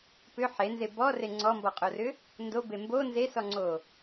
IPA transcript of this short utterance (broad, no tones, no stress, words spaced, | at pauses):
pʏ ħenze bɔre ŋ͡ǀɔmbɔqʼorʏ | ndobe mbo nzesɔŋ͡ǀo